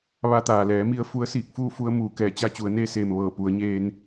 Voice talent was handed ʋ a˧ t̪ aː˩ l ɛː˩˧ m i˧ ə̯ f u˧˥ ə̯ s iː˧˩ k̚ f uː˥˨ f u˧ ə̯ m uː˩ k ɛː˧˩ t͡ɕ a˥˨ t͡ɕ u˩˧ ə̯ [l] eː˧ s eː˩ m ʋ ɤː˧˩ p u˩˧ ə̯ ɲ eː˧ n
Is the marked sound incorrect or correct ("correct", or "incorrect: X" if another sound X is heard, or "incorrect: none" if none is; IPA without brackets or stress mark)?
incorrect: n